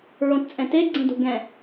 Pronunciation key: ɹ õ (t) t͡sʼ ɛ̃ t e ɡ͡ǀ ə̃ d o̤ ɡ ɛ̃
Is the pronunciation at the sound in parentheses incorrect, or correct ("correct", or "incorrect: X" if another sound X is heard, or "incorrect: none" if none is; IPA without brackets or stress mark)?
correct